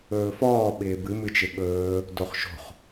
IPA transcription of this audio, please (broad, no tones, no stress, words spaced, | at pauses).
ɵːfɔː ɓɪːbɨ mɨt͡ʃɪɓɵː | doχʃo̤χ